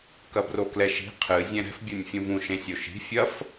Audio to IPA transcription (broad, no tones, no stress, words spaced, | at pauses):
kɐbroklɛʃi̤ qʰɨ zʲɛ̃ɾɛ̤f bʲonʲfʲũvũ ʃẽsʲoʃi̤ fʲɐf